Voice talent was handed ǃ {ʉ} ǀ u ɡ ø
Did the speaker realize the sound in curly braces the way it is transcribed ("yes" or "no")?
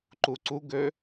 no